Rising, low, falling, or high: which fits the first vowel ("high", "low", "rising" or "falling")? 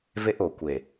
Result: high